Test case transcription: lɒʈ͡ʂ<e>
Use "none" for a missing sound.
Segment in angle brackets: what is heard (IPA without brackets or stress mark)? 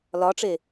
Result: e